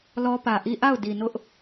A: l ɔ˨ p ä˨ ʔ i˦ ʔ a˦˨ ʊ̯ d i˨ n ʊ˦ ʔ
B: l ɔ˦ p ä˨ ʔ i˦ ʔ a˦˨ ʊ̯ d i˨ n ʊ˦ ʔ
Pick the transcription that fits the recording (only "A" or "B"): B